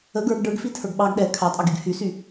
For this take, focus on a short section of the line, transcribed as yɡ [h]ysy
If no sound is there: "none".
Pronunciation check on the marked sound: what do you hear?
h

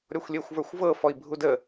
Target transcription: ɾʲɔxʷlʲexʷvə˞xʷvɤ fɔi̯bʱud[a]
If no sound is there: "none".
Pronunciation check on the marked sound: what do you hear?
ə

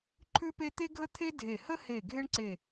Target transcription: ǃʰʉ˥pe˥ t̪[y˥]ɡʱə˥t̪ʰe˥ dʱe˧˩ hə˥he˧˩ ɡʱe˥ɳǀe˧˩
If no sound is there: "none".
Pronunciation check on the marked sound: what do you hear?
e˥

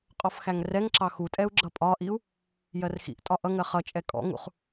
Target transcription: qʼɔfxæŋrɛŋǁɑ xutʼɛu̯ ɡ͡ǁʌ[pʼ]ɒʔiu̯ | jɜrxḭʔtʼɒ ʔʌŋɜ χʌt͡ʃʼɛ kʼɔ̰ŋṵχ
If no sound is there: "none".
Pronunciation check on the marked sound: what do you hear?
pʼ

